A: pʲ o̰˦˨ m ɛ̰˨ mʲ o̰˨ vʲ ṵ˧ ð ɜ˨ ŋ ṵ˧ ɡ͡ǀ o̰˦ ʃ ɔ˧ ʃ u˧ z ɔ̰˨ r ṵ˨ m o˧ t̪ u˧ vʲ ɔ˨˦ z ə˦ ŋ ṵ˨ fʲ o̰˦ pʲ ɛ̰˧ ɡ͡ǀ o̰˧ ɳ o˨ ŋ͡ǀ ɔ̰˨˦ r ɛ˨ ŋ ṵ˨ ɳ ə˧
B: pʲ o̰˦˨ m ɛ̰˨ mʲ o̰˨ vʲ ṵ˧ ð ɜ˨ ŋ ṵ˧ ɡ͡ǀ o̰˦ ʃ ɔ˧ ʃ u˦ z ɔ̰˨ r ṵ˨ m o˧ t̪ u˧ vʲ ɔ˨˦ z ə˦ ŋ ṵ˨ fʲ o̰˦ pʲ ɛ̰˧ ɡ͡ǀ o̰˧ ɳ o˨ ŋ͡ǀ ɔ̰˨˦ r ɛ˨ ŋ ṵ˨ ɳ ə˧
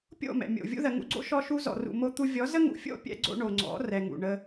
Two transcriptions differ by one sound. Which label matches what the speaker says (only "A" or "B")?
A